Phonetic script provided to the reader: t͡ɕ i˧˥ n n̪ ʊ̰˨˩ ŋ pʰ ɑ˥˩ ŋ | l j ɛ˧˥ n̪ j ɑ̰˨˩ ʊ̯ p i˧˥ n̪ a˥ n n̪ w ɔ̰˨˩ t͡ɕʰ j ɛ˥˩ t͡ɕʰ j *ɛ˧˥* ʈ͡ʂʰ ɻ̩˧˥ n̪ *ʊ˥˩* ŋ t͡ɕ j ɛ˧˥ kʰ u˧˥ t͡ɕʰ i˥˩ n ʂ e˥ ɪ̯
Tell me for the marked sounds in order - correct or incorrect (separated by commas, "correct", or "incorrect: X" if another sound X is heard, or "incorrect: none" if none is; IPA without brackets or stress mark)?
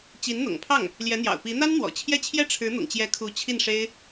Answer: incorrect: ɛ˥, incorrect: ʊ̰˨˩